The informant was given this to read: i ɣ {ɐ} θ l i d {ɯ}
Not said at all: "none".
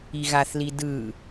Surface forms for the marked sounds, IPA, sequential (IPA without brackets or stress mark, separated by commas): a, ɯ